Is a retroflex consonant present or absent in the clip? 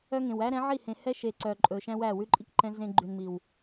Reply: absent